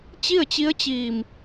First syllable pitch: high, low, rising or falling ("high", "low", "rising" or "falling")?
falling